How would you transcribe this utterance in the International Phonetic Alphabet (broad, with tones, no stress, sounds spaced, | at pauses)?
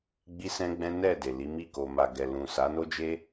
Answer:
ɡ͡b i˦ s ɛ̃˦ ɡ͡b ɛ̃˦ n ɛ˦˨ d e˨ l i˨˦ m i˦˨ k o˨ m a˨ ɡ ɛ˨ l ũ˨ s a˨˦ n o˦ d͡ʒ e˦